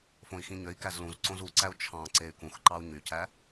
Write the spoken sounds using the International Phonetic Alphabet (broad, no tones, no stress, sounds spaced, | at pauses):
f õ i̯ x ĩ ɲ ø i̯ k æ z l ũ z ǀ õ z u ǀ æ u̯ t͡ʃʰ ɑ̃ ǀ e y̯ k ũ x ǃ ɑ u̯ ɲ y c æ